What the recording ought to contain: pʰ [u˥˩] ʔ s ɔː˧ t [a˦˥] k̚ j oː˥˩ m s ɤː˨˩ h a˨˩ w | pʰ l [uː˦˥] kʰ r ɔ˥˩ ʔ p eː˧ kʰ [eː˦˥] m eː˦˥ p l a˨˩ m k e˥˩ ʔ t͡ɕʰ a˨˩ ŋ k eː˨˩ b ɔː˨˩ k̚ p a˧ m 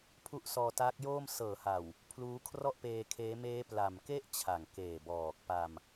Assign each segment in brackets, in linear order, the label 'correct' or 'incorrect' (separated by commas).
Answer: incorrect, incorrect, correct, correct